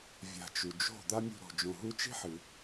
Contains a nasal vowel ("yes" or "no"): yes